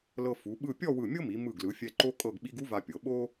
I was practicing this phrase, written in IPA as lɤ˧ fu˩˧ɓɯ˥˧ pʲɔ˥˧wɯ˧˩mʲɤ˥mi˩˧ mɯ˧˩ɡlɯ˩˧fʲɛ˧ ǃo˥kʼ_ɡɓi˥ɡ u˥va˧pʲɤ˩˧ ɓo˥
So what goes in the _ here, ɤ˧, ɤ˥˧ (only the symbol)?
ɤ˥˧